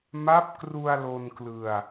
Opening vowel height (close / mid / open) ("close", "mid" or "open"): open